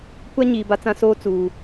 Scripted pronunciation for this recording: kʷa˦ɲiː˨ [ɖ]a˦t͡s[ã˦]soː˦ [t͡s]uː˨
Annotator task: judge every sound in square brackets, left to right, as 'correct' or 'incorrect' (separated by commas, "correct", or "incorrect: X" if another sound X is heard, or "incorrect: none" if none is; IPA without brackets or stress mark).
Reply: incorrect: b, correct, correct